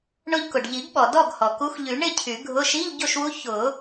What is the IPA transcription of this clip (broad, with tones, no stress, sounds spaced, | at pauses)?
ɳ ʊ˧ ʎ k ʊ˩ ɖ ʎ i˨˩˦ ɡ ɓ ɔ˩ d ɔ˥˨ ɡ h ɔ˩ k u˧˥ x ʎ y˨˩˦ ɳ ɪ˥˨ cʰ y˨˩˦ ɡʱ ʊ˧˥˧ ʃ i˧˥˧ ʎ ɟ o˥˨ ʃ w u˧˥ ç ʊ˨˩˦